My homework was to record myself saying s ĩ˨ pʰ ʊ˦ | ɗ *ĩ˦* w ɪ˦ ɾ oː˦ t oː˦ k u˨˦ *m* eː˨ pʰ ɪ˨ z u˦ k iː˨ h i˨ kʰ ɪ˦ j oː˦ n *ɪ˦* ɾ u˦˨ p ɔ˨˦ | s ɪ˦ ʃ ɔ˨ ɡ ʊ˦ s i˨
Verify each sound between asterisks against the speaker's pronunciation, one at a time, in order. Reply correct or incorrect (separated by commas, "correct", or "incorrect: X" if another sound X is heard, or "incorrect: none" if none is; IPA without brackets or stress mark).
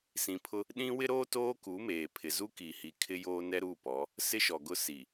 correct, correct, incorrect: ɛ˦